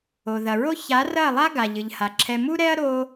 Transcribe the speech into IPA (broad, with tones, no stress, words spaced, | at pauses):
o˨ðɐ˨ɹo˦ ça˨˦rɐ˦˨lˠa˦ ɡa˨ʎɨ˨ʎha˨ǁʰɛ˧ mu˦ɾɛ˦ɐ̯ ɾo˧